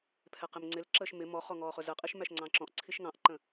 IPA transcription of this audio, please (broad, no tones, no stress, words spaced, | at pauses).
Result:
pʰɛqɪmŋ͡ǀɪlǁəːʃ mɪ mɔχɔ ŋɔːχʊzəqʼiʃ mæʃŋ͡ǀɑ̃ǁɔ̃ʔǀʰiʃ ŋɑ̃ʔǃə̃